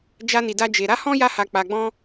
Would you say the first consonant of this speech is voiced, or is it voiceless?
voiced